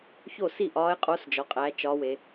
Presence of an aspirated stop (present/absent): absent